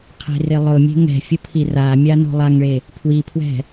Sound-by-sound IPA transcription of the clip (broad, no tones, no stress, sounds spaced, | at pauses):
qʰ e̤ r ɪ lˠ ʊ mʲ e̤ ŋ ɛ̤ fʲ ʊ pʰ i r a mʲ a n o̤ lˠ a ŋ ɭ e | pʰ w i pʰ w ɛ̤